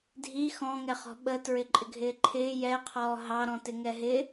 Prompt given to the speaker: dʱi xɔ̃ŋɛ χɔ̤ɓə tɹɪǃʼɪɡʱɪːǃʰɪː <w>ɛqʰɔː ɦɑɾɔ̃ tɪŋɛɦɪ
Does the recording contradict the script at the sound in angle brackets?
yes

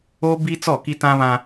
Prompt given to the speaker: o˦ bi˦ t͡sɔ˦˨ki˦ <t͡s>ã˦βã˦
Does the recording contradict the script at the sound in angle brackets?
yes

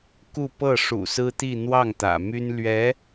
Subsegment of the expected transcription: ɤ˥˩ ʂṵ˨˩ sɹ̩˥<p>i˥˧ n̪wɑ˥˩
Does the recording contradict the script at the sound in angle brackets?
yes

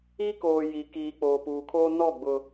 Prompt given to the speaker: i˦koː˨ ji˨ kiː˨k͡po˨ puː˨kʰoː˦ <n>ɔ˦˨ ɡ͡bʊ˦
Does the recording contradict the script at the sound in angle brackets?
no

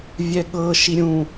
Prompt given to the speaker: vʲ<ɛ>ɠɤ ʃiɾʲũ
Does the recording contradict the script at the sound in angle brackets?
no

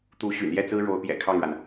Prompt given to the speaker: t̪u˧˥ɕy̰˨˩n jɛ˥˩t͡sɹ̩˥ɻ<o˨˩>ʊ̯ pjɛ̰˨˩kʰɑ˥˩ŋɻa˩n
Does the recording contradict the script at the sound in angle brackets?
yes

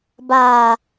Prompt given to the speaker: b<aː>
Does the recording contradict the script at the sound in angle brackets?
no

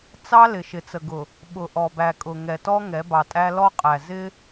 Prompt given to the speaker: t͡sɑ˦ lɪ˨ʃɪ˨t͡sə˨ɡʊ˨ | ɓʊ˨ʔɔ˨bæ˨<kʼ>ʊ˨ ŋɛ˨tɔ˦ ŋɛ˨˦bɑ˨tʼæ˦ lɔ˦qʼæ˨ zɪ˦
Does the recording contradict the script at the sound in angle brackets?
no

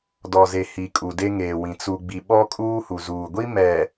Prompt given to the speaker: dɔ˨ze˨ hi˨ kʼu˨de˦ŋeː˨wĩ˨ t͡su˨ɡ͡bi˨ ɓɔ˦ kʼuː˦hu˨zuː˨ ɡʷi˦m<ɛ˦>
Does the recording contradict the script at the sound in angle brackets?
yes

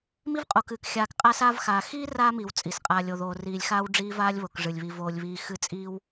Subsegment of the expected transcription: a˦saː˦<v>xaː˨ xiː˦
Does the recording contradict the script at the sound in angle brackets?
no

